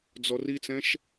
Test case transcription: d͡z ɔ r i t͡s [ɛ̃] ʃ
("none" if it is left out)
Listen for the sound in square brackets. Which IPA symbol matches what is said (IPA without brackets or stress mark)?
ɛ̃